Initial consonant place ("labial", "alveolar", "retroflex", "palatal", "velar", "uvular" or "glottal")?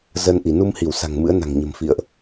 alveolar